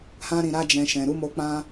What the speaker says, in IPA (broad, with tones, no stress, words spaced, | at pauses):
hã˧ɾĩ˨ ɾa˧d͡ʒɛ̃˨ ʃɛ̃˨ɾu˨˦ mo˧ k͡pã˧